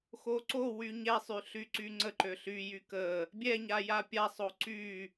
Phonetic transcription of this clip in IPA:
x o ǀ o w y ɲ ɛ sˤ y ɬ y ǀ y ŋ͡ǀ ə ǃ ø ɬ y j y k ə | bʲ ɛ ɲ a j a pʲ a sˤ o ǀ y

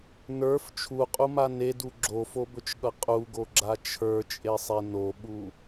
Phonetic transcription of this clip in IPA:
n ə˞ f t͡ʃʰ u qʼ u m a n e d u ɡ͡ǁ o f o b ɵ t͡ʃ ɠ ʌ qʼ u ɡ o ɡ͡ǁ a t͡ʃʰ ə˞ t͡ʃʼ e sˤ e n o ɓ u

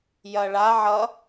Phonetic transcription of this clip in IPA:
j ɐ ɭ a ʕ ʌ

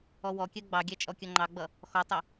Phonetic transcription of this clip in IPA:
ɔ w ɔ kʲ ɜ ɡ͡b ɑ ɡʲ æ t͡ʃʼ ɔ kʲ ʌ ŋ͡ǃ ɑ ɡ͡b ʌ | x ɔ tˤ ə

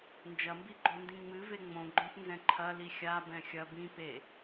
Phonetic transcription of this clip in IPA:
n d͡ʒ ɐ m b i ɡ͡ǃ o n d ĩ ŋ͡m ɨ v e ŋ͡m õ ɡ͡ǃ õ p n z ɛ̃ ǃʰ ɐ l i xʲ a b ɛ̃ xʲ ɐ b ĩ p e

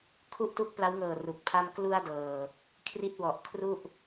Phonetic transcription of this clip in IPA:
kʰ u˥˩ ʔ t u˦˥ k̚ p l a˦˥ w ŋ ɤː˨˩ r u˨˩ k̚ pʰ a˥˩ m k l u˧ a̯ d ɤː˨˩ | kʰ r i˦˥ t̚ w ɔ˨˩ ʔ kʰ r u˥˩ ʔ

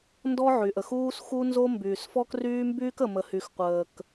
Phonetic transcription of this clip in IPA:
n d ɔ˥ ʕ y˩ ʔ ə˩ x uː˥ s x u˥ n z o˥ m b yː˩ s f ɔ˥ k r yː˥ m b yː˥ k ə˩ m ə˩ h y˩ x qʷ əː˩ k

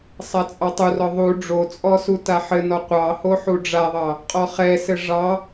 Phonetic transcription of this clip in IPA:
sˤ a t͡sʼ ɑ tˤ u r ɔ ðˤ u ɖ͡ʐ o t͡sʼ ɔ s u t a ħ ɘ n ɔ qʷ ɑ h o ħ u ɖ͡ʐ a ðˤ ɑ | qʼ ɔ χ ɛ s ɘ ʐ ɑ

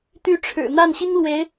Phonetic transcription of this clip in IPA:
t̪ y˧˥ ʈ͡ʂʰ ɻ̩˨˩ n̪ a˥˩ n ɕ i˥ ŋ l w e˧˥ ɪ̯

